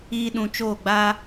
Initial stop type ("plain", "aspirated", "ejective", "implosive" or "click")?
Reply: implosive